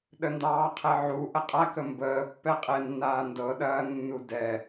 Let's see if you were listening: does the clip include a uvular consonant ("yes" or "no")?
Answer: yes